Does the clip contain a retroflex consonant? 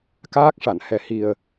yes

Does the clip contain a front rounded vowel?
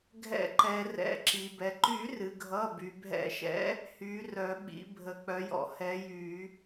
yes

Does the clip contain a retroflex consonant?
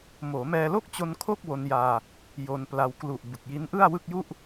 no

